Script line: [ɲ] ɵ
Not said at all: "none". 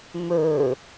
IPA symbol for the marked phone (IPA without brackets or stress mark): m